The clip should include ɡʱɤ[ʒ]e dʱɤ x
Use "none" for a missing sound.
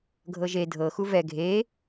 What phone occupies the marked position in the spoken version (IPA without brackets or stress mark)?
ʒ